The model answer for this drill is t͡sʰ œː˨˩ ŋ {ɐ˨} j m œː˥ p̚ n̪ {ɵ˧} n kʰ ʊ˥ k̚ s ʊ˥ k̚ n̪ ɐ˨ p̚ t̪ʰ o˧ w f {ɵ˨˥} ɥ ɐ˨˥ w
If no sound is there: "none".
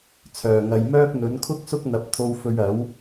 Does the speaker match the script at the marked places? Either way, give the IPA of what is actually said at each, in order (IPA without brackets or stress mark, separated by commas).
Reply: ɐ˨, ɵ˨˥, ɵ˧